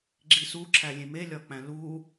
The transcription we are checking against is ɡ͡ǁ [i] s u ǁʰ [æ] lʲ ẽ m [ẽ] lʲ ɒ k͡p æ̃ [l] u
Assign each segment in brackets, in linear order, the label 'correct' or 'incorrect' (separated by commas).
correct, correct, incorrect, correct